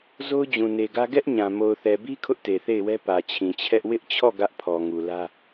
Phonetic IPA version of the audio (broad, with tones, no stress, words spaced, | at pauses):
zo˦ʊ̯d͡ʑũ˨ne˨ɡä˦ ɡɛ˦ʔ ɲã˨ mo˨ʊ̯θɛ˨bi˦ kʰʊ˦ʔte˨θe˦˨ɪ̯wɛ˦ pä˨t͡ɕʰĩ˨t͡ɕʰɛ˦ʔ wɪ˦ʔt͡ɕʰɔ˦˨ ɡä˦ʔpʰɔ˨ ŋu˨lä˦